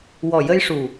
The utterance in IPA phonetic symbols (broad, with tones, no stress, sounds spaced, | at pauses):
w ɔ˨˩ j ə˧ j ʂ u˨˩